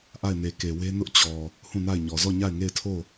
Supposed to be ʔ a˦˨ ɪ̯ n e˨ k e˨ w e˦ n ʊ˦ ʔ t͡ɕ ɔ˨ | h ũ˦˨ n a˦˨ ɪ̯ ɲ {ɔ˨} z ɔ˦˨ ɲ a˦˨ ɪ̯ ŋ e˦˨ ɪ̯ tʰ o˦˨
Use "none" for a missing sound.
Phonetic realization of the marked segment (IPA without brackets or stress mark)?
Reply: ɔ˨